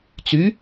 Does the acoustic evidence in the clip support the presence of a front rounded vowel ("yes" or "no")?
yes